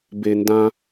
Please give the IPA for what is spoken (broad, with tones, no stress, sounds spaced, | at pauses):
b e˨ n d ã˧